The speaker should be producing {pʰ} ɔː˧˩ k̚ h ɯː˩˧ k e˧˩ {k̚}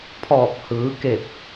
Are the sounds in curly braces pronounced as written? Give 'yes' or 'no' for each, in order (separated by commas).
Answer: yes, no